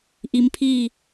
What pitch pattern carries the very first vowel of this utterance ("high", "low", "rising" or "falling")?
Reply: rising